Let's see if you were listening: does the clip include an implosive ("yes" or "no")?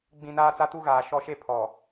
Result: no